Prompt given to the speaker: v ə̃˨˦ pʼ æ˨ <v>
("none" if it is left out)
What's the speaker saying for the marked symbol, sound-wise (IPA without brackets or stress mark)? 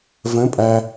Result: none